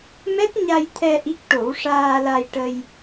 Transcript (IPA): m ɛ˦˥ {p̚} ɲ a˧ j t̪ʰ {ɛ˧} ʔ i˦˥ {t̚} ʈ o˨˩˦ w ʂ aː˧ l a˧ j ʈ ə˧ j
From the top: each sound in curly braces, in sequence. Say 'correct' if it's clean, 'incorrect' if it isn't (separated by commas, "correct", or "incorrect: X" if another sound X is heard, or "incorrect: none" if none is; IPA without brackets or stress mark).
incorrect: t̚, correct, incorrect: k̚